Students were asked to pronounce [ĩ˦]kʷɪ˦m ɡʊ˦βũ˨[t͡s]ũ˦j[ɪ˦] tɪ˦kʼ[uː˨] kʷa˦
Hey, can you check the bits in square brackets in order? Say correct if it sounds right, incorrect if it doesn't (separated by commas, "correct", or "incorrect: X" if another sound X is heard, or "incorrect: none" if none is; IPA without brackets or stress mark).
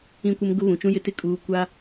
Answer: correct, incorrect: t͡ʃ, correct, correct